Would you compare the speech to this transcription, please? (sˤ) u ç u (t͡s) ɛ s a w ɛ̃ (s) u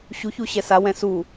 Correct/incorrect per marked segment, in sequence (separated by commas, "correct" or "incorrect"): incorrect, incorrect, correct